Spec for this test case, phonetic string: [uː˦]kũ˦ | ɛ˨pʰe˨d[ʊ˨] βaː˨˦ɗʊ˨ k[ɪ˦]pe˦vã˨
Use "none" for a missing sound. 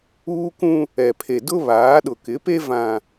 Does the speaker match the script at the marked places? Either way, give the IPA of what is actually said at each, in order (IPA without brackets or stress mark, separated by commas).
uː˦, ʊ˦, ɪ˨˦